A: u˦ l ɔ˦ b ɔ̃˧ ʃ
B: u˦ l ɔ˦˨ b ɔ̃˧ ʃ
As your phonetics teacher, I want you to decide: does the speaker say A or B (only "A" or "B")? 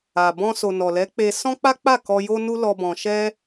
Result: A